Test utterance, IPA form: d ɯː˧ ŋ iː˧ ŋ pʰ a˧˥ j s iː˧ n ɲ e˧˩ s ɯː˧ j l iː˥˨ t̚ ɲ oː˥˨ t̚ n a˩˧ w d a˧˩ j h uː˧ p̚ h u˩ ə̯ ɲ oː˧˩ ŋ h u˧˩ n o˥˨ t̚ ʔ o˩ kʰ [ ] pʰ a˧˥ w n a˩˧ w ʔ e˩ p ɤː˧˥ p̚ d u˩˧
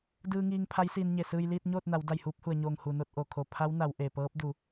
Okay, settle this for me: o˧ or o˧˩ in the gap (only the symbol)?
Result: o˧˩